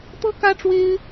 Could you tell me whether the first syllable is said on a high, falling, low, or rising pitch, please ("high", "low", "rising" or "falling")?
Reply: high